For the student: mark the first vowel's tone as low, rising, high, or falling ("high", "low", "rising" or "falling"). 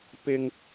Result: low